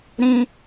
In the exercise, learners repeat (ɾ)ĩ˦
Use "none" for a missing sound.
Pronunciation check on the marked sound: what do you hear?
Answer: ɾ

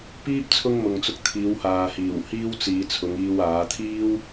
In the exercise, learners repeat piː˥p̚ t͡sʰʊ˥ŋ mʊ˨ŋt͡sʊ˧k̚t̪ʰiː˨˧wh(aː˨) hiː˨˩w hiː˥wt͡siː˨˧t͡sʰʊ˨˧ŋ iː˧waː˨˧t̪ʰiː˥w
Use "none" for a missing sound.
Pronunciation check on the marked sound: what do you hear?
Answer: aː˨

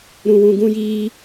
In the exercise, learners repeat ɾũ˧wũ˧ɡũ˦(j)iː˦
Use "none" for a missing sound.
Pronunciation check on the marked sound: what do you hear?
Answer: j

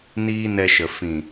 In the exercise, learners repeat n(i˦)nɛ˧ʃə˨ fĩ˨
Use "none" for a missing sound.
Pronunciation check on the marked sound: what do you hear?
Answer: iː˦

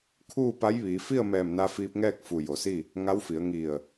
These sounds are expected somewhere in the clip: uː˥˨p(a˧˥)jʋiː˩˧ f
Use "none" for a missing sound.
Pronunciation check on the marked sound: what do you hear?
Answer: a˧˥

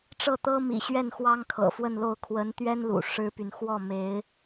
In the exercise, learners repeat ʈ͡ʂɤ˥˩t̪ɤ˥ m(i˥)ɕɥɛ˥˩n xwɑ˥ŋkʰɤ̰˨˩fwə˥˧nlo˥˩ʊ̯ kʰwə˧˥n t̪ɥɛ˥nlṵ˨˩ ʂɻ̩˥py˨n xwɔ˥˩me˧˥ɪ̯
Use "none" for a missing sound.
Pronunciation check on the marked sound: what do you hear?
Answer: ḭ˨˩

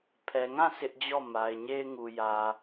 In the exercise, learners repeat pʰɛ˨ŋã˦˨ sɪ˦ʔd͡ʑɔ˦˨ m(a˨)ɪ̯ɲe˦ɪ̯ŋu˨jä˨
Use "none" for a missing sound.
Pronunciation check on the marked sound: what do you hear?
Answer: a˨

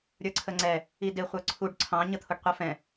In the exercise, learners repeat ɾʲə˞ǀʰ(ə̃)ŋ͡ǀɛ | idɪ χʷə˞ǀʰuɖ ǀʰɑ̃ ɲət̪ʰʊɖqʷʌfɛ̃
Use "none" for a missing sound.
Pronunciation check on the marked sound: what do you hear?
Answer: ə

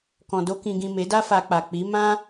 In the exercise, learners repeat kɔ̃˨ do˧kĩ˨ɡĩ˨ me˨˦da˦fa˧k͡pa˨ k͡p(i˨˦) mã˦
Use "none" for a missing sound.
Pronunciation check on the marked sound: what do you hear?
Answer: i˨˦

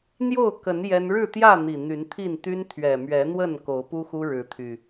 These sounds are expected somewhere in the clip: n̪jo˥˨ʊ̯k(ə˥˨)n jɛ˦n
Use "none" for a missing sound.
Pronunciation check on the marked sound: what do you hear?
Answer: ə˨˦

